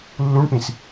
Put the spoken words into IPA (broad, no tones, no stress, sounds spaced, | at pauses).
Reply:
lː u ɳ p ĩ s